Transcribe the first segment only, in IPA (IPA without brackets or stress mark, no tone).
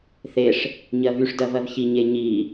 θ